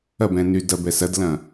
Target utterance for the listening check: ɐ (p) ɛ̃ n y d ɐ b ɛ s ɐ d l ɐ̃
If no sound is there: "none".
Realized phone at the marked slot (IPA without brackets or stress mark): b